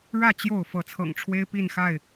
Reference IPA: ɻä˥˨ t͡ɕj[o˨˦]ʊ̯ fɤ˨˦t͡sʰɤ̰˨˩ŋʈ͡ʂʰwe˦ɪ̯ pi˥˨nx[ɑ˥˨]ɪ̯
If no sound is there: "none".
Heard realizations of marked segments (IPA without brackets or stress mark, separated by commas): o˥˨, a˥˨